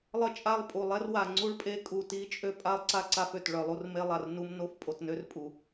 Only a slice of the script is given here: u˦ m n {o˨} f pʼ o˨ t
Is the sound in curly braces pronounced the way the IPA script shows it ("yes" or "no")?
no